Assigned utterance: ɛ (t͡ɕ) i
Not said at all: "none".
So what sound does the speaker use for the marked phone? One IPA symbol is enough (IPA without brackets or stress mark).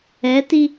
t